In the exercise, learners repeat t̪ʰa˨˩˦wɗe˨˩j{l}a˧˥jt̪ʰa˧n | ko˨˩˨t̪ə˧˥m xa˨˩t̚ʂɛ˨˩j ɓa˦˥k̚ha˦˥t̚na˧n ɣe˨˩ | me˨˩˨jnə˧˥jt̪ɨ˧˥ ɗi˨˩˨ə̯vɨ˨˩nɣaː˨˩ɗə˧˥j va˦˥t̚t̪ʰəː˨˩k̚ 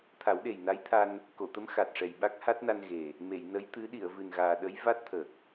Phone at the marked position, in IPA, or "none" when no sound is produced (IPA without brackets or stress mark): n